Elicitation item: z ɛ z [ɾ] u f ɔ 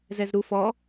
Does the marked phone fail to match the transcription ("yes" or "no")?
no